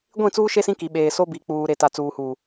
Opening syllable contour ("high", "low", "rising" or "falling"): falling